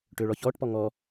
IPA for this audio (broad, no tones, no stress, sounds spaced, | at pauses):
ʈ ʏː ɭ ɔ ç ɔː ʈ p ɔ ŋ ɔ